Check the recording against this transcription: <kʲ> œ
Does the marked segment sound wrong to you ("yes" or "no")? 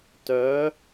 yes